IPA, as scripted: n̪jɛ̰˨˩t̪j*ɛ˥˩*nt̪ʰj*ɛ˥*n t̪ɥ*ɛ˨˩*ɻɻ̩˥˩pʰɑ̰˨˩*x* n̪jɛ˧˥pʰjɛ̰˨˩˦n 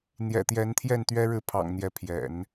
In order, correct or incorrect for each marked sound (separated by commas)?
incorrect, incorrect, incorrect, incorrect